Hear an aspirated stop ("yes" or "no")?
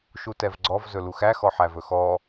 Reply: no